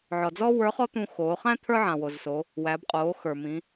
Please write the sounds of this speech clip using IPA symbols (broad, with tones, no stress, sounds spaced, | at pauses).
ʕ ɔ˩ d͡z ɔ˥ w ə˞˧˥ χ ɔ˥ t̪ ũ˧ x oː˩˧ χ æ̃˥ t̪ʰ ə˞˥ ʕ ã˩ w o˩ z s oː˩˧ | w æ˩˧ b qʼ oː˩˧ x ə˞˩ m ĩː˩˧